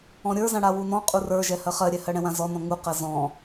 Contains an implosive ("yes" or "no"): no